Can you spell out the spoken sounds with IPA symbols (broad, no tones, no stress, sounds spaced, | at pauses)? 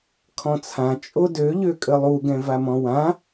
kʰ ɔ̃ t͡sʰ ã t͡ʃʼ o d ø ʎ ø kʼ ə lˠ u ɡ ɛ̃ v a m ɔ̃ w ã